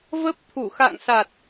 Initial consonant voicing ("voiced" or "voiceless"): voiced